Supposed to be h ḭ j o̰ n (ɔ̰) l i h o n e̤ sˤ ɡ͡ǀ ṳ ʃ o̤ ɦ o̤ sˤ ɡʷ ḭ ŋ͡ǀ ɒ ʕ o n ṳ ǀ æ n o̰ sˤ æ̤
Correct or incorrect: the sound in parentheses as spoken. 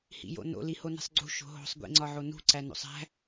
incorrect: o̰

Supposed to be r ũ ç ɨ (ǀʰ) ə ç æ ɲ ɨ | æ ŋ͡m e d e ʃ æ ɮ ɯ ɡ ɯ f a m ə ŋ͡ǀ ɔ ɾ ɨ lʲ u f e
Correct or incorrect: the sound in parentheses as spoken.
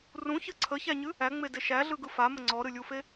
correct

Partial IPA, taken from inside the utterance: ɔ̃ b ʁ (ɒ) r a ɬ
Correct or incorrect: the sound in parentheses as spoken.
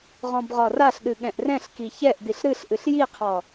correct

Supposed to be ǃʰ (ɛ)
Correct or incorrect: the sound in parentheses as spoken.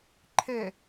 correct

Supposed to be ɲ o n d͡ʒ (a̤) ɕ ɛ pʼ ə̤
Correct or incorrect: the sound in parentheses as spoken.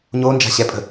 correct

